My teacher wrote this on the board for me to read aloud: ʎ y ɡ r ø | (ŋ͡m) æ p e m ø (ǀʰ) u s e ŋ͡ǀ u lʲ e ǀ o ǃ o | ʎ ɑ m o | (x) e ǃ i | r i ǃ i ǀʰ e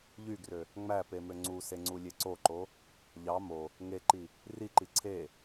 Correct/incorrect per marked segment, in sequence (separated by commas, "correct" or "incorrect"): correct, incorrect, incorrect